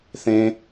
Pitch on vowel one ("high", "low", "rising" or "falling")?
high